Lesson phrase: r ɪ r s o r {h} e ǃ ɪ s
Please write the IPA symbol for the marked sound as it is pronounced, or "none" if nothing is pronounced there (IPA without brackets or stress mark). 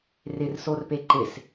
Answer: p